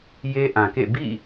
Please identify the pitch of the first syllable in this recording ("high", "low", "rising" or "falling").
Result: high